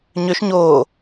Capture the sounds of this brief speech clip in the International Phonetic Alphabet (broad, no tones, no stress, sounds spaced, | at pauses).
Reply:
ɲ ø ʃ ɲ oː